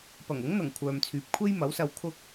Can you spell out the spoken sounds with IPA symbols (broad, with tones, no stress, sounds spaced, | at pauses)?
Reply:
p ɐ˨˩ ŋ ʊ˨˥ ŋ n̪ ɐ˨˩ ŋ kʷʰ œː˨ m t͡sʰ yː˨ p̚ kʷʰ e˥ j m ɐ˨˥ w s ɐ˧ w kʰ ʊ˧ k̚